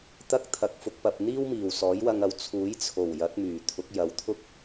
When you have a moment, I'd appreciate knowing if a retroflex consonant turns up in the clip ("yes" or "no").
no